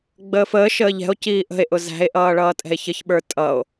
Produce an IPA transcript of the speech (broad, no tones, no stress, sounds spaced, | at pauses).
ɡ͡b əː f əː ʃ əː ʎ ɛ̤ o̯ c iː ʔ ə̤ e̯ ʔ ʊ z æ̤ e̯ ʔ ʌː ɭ ʌː tʼ ɛ̤ e̯ ç ə ç ɓ ə˞ tʼ ʌ o̯